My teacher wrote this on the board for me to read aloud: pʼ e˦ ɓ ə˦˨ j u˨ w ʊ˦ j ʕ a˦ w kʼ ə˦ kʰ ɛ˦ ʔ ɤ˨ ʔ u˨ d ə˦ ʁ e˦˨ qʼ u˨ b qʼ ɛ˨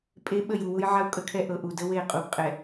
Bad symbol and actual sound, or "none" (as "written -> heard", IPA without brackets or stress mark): ʁ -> w